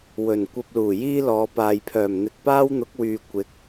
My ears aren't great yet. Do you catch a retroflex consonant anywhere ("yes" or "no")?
no